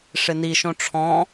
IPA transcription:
ʂ ɪ n i ʃ õ ʈ͡ʂʰ ɔ̃

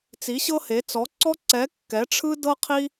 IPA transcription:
t͡s i˧˥ ɕ ɤ˥ h e˧˥ t͡s ɔ˧˥ ǀ ɔ˥ ǀ ɛ˧˥ kː ɛ˧˥ ʈ͡ʂʰ ɯ˥ d ɤ˥ qʰ i˥

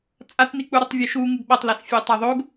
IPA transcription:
t͡sʼ a t n i k͡p u ɾ o tˤ vʲ ɛ ʃ u ŋ ɯ ɡ ɓ ʌ tˤ l ɛ s fʲ e j tˤ a ðˤ o ɡ

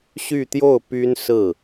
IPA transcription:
ɕ y˥˧ t̪ j o˥˩ ʊ̯ p y˥ n s ɹ̩˥˩

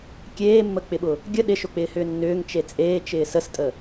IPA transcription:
kʲ eː mː ə k͡p ɪ ɓ ʊ | ɡʲ ə ɗ ɪ ʃ ʊ k͡p ɪː h ʏː nː ʏː ŋ t͡ʃ e t͡sʼ eː t͡ʃ ɪː s ə s tʼ ə

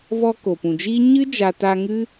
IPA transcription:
v ɔ˧ k o˨ p ũ˨ d͡ʒ iː˦ ɲ ɨ˦ d͡ʒ a˧ t aː˧ ŋ ɨ˦

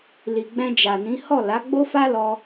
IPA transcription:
l i˨ ɡ͡b ɛ̃˧ d͡ʒ a˨ n ĩ˨˦ h ɔ˦˨ l a˨˦ ɡ͡b o˦ f a˦ l ɔ˧

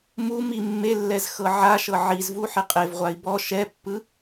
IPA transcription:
m u m i mː e lː ɛ z x ɤ ʕ a ʃ ɤ ʕ i z v u ħ i qʼ e v ʁʷ a i̯ b ɔ ʃ ɛ pː ɯ

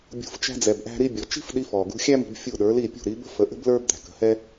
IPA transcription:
bʲ ṳ˩˥ f t͡ʃ æ̤˧ d͡z ɛ˩ b ʔ æ̤˧ ɾ i˧ bʲ ɔ˩ t͡ʃ i̤˥ f ɗ i˧ f ɔ˩ ɡ ṳ˧ xʲ æ˥ m i̤˧ b fʲ u˥˩ ɗ ə˞˩˥ l i˥˩ pʲ ṳ˥˩ ɾ i˩˥ b ə̤˥ f ə˩˥ ʔ ə̤˥ b l ə˞˥ b d̪ æ̤˩ k ə̤˩˥ h ɛ˥

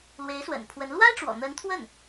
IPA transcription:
l w e˧˥ ɪ̯ s w ə̰˨˩ n pʰ w ə˧˥ n l w a˥ ɪ̯ ʈ͡ʂ w ɔ̰˨˩ n̪ ə˧˥ n t̪ʰ w ə˥˩ n

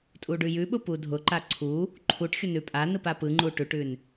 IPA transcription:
tʼ u ɖ ʉ j ʉ ɓ ʊ p u dʱ ʊ ǃ a ǀʰ u | ǃʰ u ʈ xʲ ʊ n ʉ pʼ a n ɯ p a p ɯ ŋ͡ǃ u ʈ ʉ ʈ ʉ n

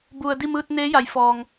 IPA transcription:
b u˩ ə̯ d i˥˨ m ɯː˧ t̚ n eː˧˥ j a˩˧ j f ɔː˩ ŋ

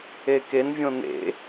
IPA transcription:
e k e n vʲ õ n̪ ḛ

